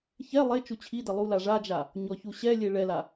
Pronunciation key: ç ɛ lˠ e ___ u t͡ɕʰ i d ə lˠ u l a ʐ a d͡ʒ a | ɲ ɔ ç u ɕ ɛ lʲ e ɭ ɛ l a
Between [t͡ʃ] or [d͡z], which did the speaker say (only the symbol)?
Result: t͡ʃ